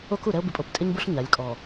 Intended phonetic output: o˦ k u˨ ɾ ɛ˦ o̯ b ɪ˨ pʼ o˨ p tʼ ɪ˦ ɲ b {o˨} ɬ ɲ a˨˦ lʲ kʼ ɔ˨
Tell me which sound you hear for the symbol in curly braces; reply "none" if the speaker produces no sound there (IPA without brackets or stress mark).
o˦